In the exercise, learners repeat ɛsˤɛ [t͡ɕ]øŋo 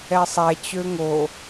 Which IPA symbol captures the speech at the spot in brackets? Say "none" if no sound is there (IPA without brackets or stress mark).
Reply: t͡ɕ